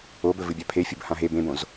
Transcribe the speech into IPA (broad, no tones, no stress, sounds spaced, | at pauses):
o b ɵ v ɨ bʲ a pʰ e fʲ u b h ã ɦ e b ẽ b õ z